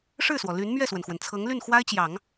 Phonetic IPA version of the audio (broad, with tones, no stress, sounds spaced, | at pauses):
ʂ ɻ̩˥˩ s w ɔ˩ l y˧˥ n m ɥ ɛ˥˩ s w ə˩ n x w ə˩ n t͡sʰ ɤ˧˥ ŋ l y˥˩ n x w a˥ ɪ̯ t͡ɕ j ɑ˨˩˦ ŋ